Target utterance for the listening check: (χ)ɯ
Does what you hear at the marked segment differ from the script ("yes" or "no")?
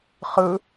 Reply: no